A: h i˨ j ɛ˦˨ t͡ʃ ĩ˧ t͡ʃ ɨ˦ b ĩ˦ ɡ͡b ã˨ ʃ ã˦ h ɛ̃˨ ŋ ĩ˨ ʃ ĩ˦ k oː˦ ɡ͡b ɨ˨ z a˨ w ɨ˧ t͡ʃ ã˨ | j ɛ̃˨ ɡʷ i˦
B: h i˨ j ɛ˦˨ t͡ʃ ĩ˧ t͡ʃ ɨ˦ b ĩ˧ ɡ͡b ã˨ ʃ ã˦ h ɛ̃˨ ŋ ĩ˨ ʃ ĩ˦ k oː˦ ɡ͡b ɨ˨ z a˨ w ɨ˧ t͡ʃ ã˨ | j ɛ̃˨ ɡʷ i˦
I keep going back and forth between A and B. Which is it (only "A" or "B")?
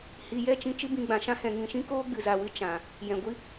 B